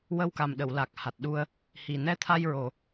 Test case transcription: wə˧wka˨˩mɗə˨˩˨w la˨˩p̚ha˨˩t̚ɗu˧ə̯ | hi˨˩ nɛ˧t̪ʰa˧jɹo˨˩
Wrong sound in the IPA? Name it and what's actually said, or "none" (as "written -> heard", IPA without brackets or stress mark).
p̚ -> k̚